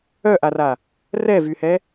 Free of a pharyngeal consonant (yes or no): yes